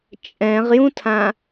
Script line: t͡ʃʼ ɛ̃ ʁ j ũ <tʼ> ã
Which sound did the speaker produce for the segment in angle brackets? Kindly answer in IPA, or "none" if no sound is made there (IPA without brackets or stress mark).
tʰ